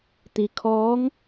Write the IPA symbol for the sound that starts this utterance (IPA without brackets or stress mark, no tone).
t̪